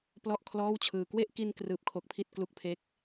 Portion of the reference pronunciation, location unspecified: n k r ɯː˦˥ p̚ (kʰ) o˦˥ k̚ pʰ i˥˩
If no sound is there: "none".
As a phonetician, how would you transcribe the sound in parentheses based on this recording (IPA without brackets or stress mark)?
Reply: kʰ